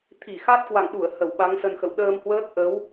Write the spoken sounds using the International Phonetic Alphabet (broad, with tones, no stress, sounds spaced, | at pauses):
t̪ʰ i˧˩ x a˦˥ t̚ k w a̰˧˨ ŋ ɗ u˧˩ ə̯ h ə˧˩ w ɓ a˨˦ ŋ s ə˧ n x ə̰˧˨ w ɗ əː˧ m h w əː˦˥ k̚ ʔ ə˨˦ w